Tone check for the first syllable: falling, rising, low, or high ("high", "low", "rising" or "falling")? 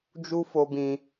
high